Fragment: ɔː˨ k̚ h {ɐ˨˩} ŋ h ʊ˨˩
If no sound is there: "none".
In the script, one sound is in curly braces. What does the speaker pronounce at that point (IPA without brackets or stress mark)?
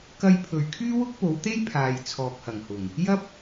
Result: ɐ˨˩